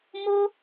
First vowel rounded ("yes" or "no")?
yes